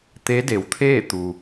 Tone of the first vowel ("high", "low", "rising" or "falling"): rising